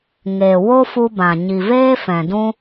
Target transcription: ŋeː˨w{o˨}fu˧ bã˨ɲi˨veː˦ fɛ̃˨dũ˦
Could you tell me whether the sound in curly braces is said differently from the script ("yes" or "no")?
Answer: yes